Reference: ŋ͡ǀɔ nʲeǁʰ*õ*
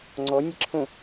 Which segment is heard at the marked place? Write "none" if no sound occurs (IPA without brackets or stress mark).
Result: õ